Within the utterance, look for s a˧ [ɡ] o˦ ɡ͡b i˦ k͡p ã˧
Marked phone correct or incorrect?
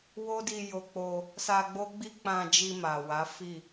incorrect